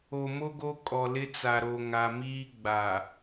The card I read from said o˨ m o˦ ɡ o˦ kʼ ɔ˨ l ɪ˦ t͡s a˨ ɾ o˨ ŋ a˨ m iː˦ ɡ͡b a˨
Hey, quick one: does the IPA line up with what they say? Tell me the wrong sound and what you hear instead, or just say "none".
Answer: none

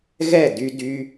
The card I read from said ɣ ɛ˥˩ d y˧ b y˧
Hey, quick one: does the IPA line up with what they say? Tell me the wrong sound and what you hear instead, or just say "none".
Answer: b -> d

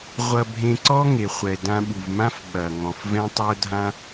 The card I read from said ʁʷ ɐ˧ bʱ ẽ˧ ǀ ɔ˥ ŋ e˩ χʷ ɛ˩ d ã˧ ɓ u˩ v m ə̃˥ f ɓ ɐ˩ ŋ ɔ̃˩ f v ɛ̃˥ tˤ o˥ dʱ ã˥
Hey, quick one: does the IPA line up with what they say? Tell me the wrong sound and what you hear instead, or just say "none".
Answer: ə̃˥ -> ã˥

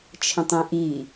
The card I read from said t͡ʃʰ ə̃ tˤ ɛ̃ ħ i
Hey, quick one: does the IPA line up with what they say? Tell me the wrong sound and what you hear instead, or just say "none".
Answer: ħ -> ʔ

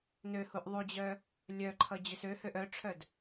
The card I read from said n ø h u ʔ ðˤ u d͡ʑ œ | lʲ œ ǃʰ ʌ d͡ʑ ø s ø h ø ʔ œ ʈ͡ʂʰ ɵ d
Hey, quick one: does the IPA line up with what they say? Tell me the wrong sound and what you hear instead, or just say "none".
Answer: ɵ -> œ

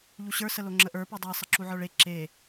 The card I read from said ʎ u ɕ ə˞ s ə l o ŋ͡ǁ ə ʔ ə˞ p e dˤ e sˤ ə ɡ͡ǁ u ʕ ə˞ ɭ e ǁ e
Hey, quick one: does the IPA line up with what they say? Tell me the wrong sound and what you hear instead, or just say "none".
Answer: ɡ͡ǁ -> ǁ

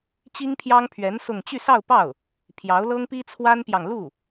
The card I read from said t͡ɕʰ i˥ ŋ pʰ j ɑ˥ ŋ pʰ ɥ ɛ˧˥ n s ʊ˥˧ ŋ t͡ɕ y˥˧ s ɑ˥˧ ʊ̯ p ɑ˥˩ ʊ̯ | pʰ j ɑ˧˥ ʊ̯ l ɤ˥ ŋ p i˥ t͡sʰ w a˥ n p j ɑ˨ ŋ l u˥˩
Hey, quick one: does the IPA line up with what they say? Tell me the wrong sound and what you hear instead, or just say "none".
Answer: t͡ɕʰ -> t͡ɕ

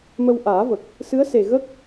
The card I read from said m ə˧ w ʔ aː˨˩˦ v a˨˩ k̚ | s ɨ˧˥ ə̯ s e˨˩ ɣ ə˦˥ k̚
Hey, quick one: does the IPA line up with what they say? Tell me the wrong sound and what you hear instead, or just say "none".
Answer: a˨˩ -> ə˨˩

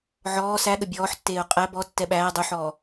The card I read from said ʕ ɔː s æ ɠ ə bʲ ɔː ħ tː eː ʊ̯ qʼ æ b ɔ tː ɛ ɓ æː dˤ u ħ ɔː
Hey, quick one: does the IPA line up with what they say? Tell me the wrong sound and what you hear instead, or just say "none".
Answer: none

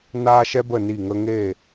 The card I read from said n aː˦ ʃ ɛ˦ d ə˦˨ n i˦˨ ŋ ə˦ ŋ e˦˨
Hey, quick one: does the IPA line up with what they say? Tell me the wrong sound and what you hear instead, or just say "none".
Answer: d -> b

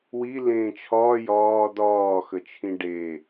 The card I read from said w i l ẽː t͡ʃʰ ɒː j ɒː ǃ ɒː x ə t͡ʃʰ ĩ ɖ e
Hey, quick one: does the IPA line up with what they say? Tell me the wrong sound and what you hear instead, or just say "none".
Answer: ǃ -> d̪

